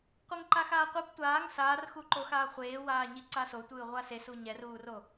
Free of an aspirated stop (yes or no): yes